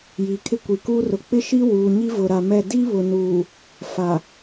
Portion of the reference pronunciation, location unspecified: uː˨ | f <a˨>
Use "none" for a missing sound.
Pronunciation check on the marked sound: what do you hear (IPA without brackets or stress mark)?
a˨